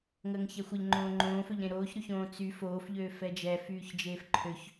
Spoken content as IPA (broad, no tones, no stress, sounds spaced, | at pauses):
ŋ əː ŋ ç ɛ xʷ ə ʎ ŋ͡ǃ õː ŋ͡ǃ õː f ø ʎ ɾ ẽ ɾ oː ç ɾ y ç õː t͡s y f oː f ʎ øː f ɛ d͡ʒ ɛ f yː ç d͡ʒ eː f ǃʰ ø ç